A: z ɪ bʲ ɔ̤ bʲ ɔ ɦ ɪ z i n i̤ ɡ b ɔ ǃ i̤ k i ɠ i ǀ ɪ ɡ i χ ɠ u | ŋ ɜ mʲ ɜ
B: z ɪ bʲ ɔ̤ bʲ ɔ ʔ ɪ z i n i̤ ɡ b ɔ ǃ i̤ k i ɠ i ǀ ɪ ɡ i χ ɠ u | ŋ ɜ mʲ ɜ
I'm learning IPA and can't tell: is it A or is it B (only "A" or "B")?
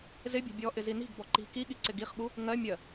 B